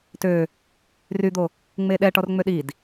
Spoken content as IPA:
t ø | r y d̪ o | ŋ͡m e ɗ ɛ ʈ ɔ r ŋ͡m ø ɗ i d

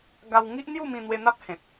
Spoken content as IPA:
ɡ a˧ w ŋ i˦ ʔ n̪ j u˥˧ m ĩ˧ n̪ w e˧ n̪ a˦ p̚ h ẽ˨ t̚

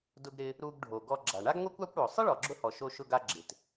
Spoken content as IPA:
d ʊ˧ ɡ ɾ ɪ˧ | ɾ u˧ ɡ ɖʱ o˩ ɡ ɔ˧ ɡ͡ǁ a˩ ɳ a˥ ɡ ŋʷ e˥ kʷ a˥ kʷ ɽ o˩ sˤ ɪ˥ ɭ ɔ˩ ɡ͡ǁ ʊ˧ h ɔ˩ ʃ o˧ ʃ ʊ˧ ɡ a˧ ɡ͡ǁ ɪ˩ t

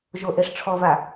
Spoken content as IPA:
ʒ o ʔ e ʂ ʈ͡ʂʰ ɔ v a

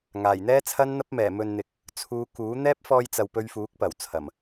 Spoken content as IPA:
ŋ aː˨˩ j n̪ ɛː˥ t͡sʰ ɐ˥ n n̪ ɐ˥ p̚ m ɛː˨˩ m ɵ˨ n n̪ ɪ˨˥ k̚ | t͡sʰ uː˨˧ k uː˨˥ n̪ ɛː˥ p̚ f ɔː˧ j t͡s ɐ˨ w p ɵ˧ ɥ f uː˨˥ k̚ p ɐ˨˩ w t͡sʰ ɐ˨˩ m

